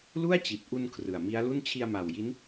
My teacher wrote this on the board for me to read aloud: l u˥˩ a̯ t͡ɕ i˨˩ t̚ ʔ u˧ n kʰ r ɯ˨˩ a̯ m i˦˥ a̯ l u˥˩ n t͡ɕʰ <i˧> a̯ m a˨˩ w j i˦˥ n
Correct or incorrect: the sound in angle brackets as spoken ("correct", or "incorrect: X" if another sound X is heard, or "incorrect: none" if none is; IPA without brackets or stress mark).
correct